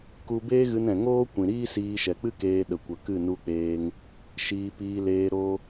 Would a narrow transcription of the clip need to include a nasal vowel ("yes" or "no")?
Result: yes